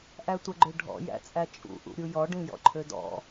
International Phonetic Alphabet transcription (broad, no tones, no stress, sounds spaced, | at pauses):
ʔ æ tʷ ə ɡ͡ǃ ø ɖʱ ɔ̰ j æ̰ t͡sʼ æ t͡ʃʼ ṵ ʔ ṵ ɾʲ u j ɔ ɖ ĩ j ɔ̰ ǃʰ ø d ɔ̰